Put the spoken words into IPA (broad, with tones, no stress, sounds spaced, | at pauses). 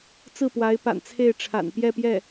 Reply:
t͡s ɹ̩˥˩ p w a˧˥ ɪ̯ p a̰˨˩ n t͡sʰ e˥˩ ɪ̯ ʈ͡ʂʰ a̰˨˩ n p j ɛ˥˧ p j ɛ˥˩